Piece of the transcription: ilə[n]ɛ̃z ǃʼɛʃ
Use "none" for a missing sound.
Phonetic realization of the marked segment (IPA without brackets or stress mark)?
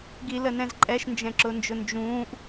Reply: n